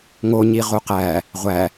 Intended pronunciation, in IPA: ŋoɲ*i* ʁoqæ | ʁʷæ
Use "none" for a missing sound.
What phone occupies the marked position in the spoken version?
i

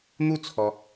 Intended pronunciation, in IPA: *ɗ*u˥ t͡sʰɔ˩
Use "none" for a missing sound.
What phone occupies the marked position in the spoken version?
n̪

